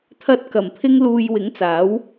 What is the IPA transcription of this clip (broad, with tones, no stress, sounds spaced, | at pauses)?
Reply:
t̪ʰ ɐ˧ t̚ k ɐ˨˩ m pʰ ɪ˥ ŋ l uː˧ j w ɪ˨˥ ŋ t͡s aː˨˥ w